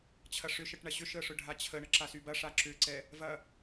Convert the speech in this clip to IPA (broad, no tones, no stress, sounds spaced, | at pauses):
t͡ɕʰ ɐ ʂ ʏ ʃ ə ʈ ɳ ɐ ɕ ʏ ʃ ə ʂ ʊ ɖʱ a t͡ɕʰ ə ɳ ə ǁ a s y b ɐ ʂ a ǁ ʏ ǀ ɛ | v ɐ